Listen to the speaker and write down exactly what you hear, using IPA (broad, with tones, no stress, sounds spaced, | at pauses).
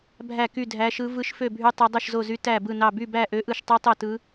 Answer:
bʱ æ˥˧ k y˥˧ dʱ æ˦˥ ʃ ɯ˦˥ v ɯ˦˥ ʃ f ø˥˧ bʱ y˦˥ tˤ o˦˥ dˤ ɯ˥˧ ʃ z o˥˧ z y˦˥ t æ˥˧ b ɯ˥˧ n ɑ˥˧ b y˥˧ b æ˥˧ ʔ ø˦˥ ʔ ɯ˥˧ ʃ tˤ y˦˥ tˤ o˥˧ t ɯ˦˥